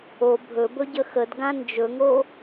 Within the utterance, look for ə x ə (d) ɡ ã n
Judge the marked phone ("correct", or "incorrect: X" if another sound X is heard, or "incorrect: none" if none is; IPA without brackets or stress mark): correct